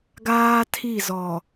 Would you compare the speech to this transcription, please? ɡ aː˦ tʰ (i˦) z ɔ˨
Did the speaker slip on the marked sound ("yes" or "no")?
yes